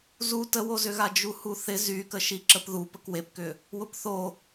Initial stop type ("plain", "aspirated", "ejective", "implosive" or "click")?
plain